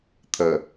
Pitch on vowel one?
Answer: low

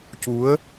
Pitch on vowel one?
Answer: rising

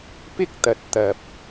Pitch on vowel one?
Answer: high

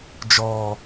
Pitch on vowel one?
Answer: low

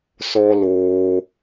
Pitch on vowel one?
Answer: high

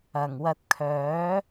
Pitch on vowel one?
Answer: low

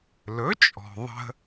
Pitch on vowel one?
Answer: rising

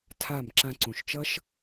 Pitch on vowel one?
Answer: falling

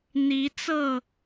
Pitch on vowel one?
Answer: rising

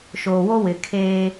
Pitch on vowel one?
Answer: low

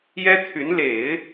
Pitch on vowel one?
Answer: high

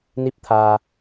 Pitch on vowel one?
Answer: rising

